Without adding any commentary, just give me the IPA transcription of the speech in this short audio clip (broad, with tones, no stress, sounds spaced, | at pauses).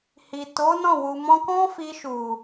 h i˨ t o˨˦ n ɔ̃˦˨ w u˨ m ɔ̃˧ k ɔ̃˦ f i˧ ʃ u˨